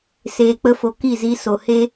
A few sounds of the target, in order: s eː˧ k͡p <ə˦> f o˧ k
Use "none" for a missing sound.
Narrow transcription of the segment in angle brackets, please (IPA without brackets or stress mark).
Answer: ə˦